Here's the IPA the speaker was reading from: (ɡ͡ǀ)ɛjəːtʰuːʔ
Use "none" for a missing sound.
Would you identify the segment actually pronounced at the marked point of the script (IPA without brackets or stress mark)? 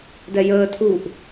d